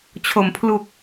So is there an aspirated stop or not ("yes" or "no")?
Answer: yes